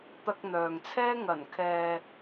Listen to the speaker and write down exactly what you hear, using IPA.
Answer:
t̪ɐ˧k̚ n̪œː˨ŋt͡sʰɛː˥ ŋɐ˨˩nkʰɛː˨

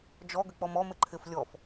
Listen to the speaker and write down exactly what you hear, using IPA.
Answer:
d͡ʒɔɡʏk͡pɔm ɔmɪ ǃʰɪf lʲɔf

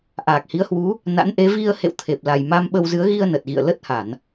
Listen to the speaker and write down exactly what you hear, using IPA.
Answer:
ʔaː˨˩k̚hi˨˦ə̯hwu˨˦ | na̰˧˥nʔe˨˦ vi˧ə̯ hḛ˧˨wt̪ʰe˨˩p̚ la˨˩j ma˧m ɓə˧wzɨ˨˦ə̯ ɣi˧ə̯nə˨˩t̚ɣḭ˧˨ə̯ lə˦˥t̚ha˧˩˨n

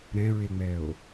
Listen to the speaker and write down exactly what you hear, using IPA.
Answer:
ɾɛ̃ɹeŋ͡mɛo̯

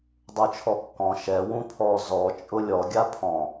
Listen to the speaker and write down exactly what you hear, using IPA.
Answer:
dˤot͡ʃʰɔkːɔ̃ ʃɛ wũpʰɔ zɔ t͡ʃʼʊlʲɔ ɡʲapʰɔ̃

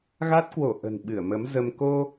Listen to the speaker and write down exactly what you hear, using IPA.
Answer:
ɣa˦˥t̚kwo˧˩ ʔə̤˨˩nɓɨ˧˩ə̯ mə˨˦mzə˧m ko˧

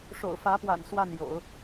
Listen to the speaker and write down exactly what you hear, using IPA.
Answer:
ʂo̰˨˩ʊ̯fä˧˥pwa̰˨˩n swa˥˩n jo̰˨˩˦ʊ̯

